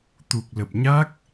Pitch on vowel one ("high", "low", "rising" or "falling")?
low